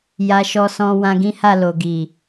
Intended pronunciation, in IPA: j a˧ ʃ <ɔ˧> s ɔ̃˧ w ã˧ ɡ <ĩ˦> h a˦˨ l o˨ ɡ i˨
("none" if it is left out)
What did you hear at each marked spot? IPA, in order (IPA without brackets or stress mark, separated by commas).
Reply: ɔ˧, ĩ˦